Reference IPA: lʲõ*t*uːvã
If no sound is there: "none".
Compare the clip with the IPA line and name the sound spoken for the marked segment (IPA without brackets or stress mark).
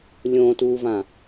t